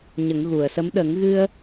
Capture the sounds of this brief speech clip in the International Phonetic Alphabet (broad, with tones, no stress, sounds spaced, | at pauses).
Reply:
ɲ ə˨˩˦ ŋ ɣ u˨˩˨ ə̯ s ə˧˥ m ɗ ə˨˩˦ ŋ ɣ ɨ˧ ə̯